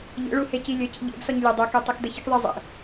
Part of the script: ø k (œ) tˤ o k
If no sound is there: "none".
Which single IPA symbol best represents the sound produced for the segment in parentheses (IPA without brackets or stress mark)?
ø